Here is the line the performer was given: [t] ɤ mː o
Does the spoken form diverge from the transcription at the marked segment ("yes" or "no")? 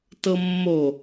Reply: no